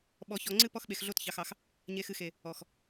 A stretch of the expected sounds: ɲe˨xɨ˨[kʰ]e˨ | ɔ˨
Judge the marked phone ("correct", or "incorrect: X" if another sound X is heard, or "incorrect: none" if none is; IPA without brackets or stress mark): incorrect: x